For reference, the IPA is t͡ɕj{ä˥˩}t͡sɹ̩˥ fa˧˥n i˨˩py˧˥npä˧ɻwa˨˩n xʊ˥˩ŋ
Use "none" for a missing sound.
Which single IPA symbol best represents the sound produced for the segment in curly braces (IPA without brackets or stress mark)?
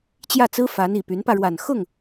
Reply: ä˥˩